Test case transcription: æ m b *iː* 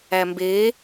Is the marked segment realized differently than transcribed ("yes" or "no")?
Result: yes